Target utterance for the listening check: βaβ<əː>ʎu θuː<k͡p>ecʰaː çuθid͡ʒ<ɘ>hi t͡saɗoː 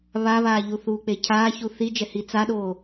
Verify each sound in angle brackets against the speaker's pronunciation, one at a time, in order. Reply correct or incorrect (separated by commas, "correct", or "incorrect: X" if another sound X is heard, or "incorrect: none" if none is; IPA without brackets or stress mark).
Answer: incorrect: aː, correct, incorrect: ɛ